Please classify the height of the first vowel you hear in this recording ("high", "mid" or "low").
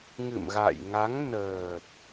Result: high